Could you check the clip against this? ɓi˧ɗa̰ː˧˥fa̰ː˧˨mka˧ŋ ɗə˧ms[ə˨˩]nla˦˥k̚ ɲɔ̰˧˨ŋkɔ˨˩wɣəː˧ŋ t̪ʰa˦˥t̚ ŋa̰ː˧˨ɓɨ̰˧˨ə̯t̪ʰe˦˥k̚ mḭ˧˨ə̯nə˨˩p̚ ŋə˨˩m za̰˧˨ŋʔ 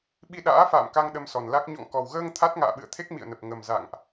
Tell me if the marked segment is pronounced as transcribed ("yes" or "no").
no